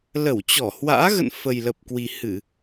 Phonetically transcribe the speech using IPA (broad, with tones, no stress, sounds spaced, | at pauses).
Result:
l ə˧˩ w t͡ɕ ɔ˧˩ h w a̰ː˧˥ ɣ ə̰˧˨ n f ə˨˩ j l ə˨˩ p̚ k w i˨˩ h ɨ˧˩˨